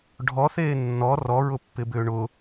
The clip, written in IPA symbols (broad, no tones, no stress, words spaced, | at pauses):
ɖʱɔθeː nːɔ rɔɹʊpːɪbʏː ɳʊ